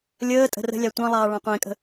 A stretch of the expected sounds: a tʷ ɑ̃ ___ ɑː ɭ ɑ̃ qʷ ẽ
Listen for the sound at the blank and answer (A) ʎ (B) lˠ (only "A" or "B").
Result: B